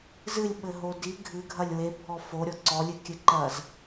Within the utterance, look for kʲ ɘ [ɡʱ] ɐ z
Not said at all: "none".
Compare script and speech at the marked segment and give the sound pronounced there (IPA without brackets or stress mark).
ǃ